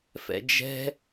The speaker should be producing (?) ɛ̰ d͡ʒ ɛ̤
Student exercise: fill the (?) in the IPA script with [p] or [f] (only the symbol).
f